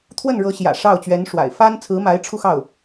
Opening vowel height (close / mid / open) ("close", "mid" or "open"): mid